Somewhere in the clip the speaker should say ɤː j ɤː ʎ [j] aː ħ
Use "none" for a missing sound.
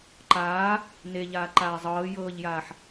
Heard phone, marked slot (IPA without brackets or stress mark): j